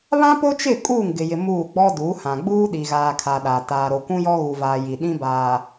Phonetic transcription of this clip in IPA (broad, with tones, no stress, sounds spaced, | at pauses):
β ã˦ p o˦ t͡ʃ ɪ˦˨ kʼ uː˦˨ ŋ ɡ ɪ˨ j ɪ˨ m uː˦˨ ɡ͡b ɔ˦ d u˨˦ h ã˨ ɡ͡b uː˦ ɗ i˨ ɣ aː˨ kʰ a˨ ɗ a˨ t aː˨ ɾ o˨ kʷ ũ˦ j ɔ˦ ɣ u˨ v aː˨ j i˨ ɗ ĩ˦ b aː˨